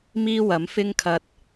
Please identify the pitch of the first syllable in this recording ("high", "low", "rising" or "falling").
high